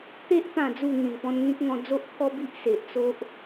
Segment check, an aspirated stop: present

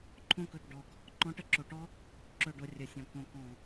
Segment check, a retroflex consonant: present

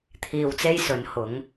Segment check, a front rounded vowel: absent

